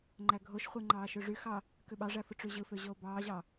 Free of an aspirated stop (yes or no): yes